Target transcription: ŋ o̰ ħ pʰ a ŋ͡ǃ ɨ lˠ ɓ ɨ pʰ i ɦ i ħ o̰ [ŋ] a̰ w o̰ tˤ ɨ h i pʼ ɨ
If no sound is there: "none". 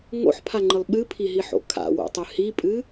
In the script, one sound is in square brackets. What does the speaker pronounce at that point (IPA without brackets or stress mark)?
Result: kʰ